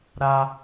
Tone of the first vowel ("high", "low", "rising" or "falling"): high